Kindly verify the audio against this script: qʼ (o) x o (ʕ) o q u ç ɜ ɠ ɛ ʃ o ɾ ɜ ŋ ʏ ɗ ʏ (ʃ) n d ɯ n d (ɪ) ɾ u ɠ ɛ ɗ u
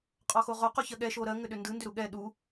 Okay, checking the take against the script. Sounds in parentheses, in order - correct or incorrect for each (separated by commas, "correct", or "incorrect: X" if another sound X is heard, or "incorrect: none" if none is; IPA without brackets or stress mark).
incorrect: ɔ, incorrect: ʁ, incorrect: none, incorrect: ʏ